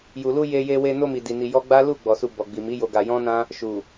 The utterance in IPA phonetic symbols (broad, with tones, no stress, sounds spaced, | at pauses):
j u˨ l u˧ j e˧ j e˧ w e˧ n o˧ m i˨ d i˨ n i˧ j ɔ˦ ɡ͡b a˦ l u˦˨ ɡ͡b ɔ˨ s u˧ b ɔ˨ ɡ͡b i˨ m i˨˦ j o˧ ɡ a˧ j ɔ̃˦ n ã˦ | ʃ u˨